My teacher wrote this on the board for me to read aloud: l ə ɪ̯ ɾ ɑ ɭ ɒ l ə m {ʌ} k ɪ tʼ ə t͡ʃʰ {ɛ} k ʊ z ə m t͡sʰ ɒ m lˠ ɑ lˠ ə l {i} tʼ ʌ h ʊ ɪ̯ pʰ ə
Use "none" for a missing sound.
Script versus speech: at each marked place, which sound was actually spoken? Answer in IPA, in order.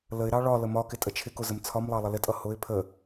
ɒ, ɪ, ɪ

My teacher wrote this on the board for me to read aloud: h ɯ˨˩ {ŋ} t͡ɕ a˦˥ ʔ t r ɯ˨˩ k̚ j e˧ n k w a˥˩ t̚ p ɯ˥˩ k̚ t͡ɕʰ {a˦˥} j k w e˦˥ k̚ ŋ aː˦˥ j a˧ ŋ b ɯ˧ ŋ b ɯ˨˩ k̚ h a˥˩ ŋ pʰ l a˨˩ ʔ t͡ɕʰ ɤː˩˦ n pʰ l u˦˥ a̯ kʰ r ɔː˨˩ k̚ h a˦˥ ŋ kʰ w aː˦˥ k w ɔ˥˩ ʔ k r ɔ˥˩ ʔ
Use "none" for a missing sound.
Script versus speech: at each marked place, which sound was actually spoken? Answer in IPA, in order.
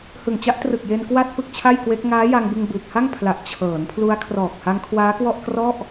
ŋ, a˥˩

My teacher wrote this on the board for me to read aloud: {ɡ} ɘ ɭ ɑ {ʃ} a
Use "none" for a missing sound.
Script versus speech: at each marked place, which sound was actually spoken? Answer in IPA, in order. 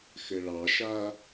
x, ʃ

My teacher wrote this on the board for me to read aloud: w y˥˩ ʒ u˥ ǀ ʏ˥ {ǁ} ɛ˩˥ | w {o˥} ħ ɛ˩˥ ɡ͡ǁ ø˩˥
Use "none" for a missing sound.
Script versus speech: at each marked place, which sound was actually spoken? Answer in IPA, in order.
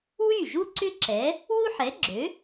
ǁ, u˥

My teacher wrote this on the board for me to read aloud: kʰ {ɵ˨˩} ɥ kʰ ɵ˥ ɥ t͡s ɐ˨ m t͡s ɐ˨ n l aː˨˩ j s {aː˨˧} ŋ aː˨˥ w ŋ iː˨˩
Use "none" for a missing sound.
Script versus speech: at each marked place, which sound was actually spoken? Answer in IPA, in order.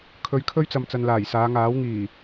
ɵ˨˧, aː˨˧

